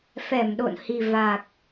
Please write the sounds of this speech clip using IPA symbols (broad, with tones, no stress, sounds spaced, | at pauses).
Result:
f ɛ˧˩ m ɗ o̰˧˨ n h i˨˩ v a˨˩ k̚